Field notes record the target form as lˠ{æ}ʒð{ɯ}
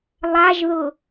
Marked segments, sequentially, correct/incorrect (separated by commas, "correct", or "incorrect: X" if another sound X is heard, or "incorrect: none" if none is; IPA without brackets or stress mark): incorrect: a, incorrect: ʊ